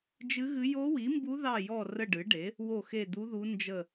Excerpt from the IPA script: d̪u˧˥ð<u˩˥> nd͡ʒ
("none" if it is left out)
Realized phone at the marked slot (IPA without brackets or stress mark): u˧˥